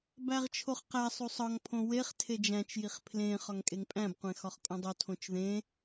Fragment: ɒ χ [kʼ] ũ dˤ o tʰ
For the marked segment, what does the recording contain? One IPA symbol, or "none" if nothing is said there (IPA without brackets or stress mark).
kʼ